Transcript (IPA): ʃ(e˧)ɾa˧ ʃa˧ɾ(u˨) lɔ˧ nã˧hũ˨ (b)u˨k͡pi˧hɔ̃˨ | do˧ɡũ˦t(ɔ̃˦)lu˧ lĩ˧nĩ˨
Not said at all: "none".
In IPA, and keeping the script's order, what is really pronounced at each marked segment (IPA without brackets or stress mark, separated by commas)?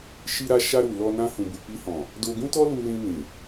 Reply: i˧, u˨, b, ɔ˦